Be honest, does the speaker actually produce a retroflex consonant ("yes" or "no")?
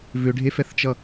yes